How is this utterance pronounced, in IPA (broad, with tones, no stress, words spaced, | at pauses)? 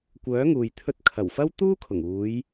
kʷœː˨˥ŋuː˨j t̪ʰɵ˧t̚kʰɐ˨˩wfɐ˥w t̪uː˥kʰʊ˨˩ŋ uː˨˧j